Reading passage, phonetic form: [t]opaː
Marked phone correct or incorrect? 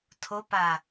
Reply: incorrect